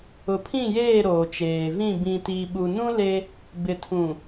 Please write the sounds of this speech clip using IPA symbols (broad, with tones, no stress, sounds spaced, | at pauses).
ʊ˨ pʰ ĩ˦˨ j eː˦˨ ɾ oː˨ t͡ʃ eː˨ v ĩ˦˨ b ĩ˨ t iː˨ ɓ u˨ n ũ˦ l e˦ | b ɪ˨ tʰ ũ˨